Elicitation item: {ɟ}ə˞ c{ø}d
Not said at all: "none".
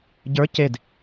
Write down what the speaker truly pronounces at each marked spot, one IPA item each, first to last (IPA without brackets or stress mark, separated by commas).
ɟ, e